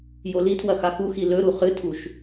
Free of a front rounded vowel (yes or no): yes